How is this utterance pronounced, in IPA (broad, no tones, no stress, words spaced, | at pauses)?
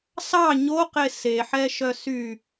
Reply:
sɑ ɲoqe seħɛʃœ sy